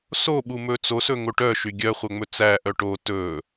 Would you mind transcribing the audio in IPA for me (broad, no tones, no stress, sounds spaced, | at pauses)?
s o ɓ u m ɵ t͡s o s ɵ ŋ o ʈ œ ʃ y ɡʲ œ χʷ œ ŋ͡m ɵ t͡s æ ʔ œ ʈ o t ɵ